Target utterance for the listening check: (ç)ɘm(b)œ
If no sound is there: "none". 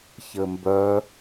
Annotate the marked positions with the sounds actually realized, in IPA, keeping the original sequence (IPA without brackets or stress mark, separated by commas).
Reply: ç, b